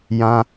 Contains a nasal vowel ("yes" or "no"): yes